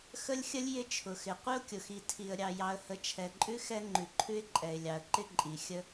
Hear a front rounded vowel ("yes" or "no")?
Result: no